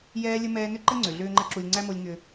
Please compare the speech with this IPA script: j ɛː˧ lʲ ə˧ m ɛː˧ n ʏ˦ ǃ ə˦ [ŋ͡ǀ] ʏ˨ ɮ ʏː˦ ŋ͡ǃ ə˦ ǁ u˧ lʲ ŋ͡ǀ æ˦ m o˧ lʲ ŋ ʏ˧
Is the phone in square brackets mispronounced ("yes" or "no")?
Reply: no